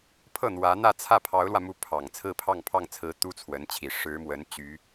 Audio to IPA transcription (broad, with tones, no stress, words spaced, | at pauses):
pʰɤ˥˩n̪wä˧˥n̪ä˥˧t͡sʰä˥˩ pʰɑ˧˥ʊ̯lwä˧mu˧˥ pʰɑ˨˩ŋ t͡sʰɹ̩˥˧pʰɑ˥˧ŋpʰɑ˥˩ŋt͡sʰɹ̩˧˥ t̪u˥t͡sʰwə˧˥nt͡ɕʰi˨˩ ʂɻ̩˧˥mwə˧˥n t͡ɕy˧˥